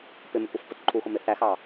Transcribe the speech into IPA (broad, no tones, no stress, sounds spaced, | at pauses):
p ɪ m ɪ kʷ ə f p ʊ t ǃʰ u x ʊ m ɪ θ æ x ɑ